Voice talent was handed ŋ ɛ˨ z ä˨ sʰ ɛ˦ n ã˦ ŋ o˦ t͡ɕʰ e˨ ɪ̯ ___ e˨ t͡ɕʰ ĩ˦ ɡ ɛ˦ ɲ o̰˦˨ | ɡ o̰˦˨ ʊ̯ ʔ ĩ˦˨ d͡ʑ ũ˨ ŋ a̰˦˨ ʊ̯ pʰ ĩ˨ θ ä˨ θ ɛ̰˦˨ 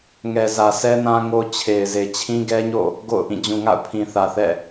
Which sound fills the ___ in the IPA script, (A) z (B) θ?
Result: A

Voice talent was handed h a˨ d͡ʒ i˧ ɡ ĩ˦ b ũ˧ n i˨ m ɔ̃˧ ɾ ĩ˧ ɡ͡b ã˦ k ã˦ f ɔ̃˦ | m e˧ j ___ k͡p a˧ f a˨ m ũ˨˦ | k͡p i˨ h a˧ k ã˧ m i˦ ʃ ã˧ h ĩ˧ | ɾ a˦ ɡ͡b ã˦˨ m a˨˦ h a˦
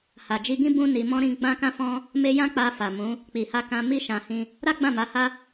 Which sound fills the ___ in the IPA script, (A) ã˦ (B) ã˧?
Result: A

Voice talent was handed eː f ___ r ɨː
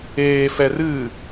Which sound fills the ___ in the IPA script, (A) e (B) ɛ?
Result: B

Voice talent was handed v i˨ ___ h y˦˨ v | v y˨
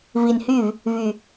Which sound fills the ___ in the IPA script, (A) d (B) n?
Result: B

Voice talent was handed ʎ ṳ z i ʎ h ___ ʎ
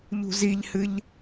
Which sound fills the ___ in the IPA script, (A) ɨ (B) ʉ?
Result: A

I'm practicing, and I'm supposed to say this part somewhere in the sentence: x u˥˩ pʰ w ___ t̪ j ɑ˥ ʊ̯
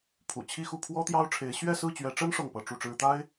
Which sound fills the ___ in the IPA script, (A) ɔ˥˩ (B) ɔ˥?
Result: B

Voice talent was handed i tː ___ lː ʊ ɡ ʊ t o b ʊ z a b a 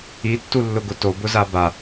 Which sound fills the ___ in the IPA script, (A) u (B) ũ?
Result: A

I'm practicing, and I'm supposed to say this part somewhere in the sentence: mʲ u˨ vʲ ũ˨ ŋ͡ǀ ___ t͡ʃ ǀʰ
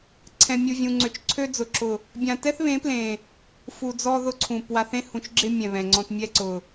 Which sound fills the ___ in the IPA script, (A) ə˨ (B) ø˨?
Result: B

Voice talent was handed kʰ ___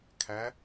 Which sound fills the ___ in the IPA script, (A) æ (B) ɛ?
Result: A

